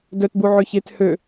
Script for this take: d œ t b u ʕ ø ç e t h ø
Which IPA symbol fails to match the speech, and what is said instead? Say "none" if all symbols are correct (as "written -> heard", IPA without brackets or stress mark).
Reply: none